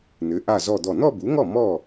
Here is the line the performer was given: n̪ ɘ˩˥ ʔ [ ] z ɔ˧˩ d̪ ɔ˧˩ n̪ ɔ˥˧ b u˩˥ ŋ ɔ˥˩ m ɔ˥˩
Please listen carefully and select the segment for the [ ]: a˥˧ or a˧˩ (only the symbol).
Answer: a˧˩